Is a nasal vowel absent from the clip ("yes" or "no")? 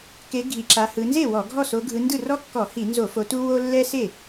yes